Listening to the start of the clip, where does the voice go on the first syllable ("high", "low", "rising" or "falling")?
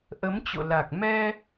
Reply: rising